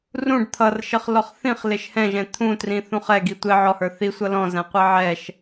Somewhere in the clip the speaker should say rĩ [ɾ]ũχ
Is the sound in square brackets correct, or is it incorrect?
incorrect